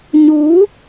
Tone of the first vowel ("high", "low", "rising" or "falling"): rising